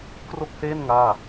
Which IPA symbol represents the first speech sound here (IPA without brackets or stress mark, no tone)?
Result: k